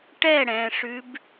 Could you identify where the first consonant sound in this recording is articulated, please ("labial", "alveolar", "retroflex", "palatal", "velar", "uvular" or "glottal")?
retroflex